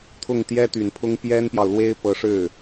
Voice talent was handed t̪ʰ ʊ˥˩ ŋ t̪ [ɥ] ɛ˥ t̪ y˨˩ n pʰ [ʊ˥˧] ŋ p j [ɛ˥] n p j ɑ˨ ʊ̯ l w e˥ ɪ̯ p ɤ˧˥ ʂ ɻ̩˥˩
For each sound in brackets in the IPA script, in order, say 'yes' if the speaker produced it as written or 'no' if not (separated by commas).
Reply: no, no, yes